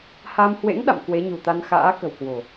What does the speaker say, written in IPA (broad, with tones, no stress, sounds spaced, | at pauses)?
h a˧ m h w ḛ˧˥ ŋ ɗ a̰˧˨ m k w e˨˦ ɲ ṳ˨˩ t̪ a˧ n x a̰ː˧˥ k ə̤˨˩ w k w o̤˨˩